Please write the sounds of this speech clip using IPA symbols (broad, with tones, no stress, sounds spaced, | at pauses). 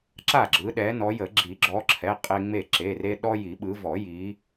ǁ a˥˩ ɡ͡ǁ ɯ˨˦ ɗ ɛ˨˦ n ɔ˨˦ j ə˨˩˦ ɡ͡ǁ i˨˩˦ ɡ͡ǁ ɔ˨˦ ǁʰ ɛ˩˧˩ qʼ e˦ ŋ͡m e˥˩ ǁ e˩˧˩ r e˦ ɗ ɔ˦ j i˨˩˦ ɓ ɯ˨˦ v ɔ˨˩˦ j i˨˦